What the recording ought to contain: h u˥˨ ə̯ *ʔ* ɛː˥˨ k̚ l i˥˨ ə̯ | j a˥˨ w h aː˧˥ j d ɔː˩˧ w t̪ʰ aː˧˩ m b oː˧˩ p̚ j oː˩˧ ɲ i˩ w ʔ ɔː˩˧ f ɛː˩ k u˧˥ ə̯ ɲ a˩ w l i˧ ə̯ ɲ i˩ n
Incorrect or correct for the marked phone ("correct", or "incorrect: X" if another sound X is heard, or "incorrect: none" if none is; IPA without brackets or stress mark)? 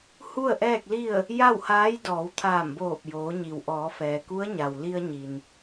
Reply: correct